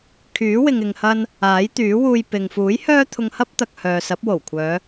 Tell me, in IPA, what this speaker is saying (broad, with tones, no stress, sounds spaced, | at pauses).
kʰ yː˨˥ w ɪ˨ ŋ ɪ˨ ŋ h ɐ˧ n | aː˨˥ j t̪ yː˨˥ w uː˧ j p ɪ˨ ŋ f uː˨˥ j h œː˥ t̪ʰ ʊ˧ ŋ h ɐ˥ p̚ t̪ ɐ˨ k̚ h œː˨ s ɐ˨˥ p̚ w o˨˩ w kʷʰ œː˨˧